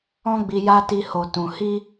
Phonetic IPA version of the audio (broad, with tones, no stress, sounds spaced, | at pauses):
ɔ̃˦ ɡ͡b i˧ j a˦ t i˧ h o˨ t ũ˨ h i˧